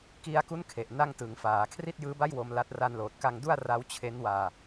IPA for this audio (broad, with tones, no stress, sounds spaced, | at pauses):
k i˧ a̯ k u˦˥ n kʰ e˨˩ ʔ n a˥˩ ŋ t ɯ˩˦ ŋ f aː˩˦ kʰ r i˥˩ t̚ j ɯː˦˥ b a˥˩ j w o˧ m l a˦˥ t̚ r a˧ n l oː˨˩ t̚ k a˧ ŋ d u˥˩ a̯ r a˦˥ w t͡ɕʰ e˦˥ n w aː˧